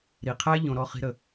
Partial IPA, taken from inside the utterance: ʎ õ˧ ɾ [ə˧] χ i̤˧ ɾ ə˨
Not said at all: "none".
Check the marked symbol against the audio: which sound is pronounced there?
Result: ɔ˧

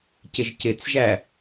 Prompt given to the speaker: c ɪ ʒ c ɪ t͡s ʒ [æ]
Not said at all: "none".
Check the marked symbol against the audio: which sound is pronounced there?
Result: æ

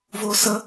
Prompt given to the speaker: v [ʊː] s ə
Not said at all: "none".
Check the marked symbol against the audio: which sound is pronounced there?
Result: ʊː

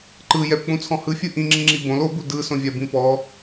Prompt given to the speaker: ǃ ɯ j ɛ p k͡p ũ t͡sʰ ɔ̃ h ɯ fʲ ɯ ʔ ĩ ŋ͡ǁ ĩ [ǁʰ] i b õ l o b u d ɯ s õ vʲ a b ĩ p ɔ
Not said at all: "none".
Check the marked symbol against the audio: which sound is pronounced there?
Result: ŋ͡ǁ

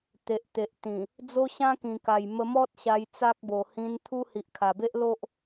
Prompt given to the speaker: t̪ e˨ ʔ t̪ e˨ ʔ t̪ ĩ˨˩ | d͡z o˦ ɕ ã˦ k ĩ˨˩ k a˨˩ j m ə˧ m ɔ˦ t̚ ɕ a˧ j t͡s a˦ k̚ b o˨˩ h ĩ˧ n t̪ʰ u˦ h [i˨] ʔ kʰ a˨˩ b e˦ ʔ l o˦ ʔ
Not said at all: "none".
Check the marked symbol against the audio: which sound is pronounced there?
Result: i˨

